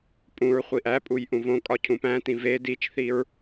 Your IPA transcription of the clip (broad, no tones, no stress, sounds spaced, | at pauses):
pʼ ũ ɹ χʷ i ʔ æ pʼ u j ʔ ũ v õ kʼ ɒ cʰ ũ p æ̃ t ĩ v e d i t͡ʃ θ i ɹ